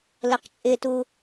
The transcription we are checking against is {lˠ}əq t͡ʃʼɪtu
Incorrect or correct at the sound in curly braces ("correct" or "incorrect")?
incorrect